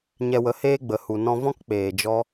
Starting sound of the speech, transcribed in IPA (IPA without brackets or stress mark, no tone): ɲ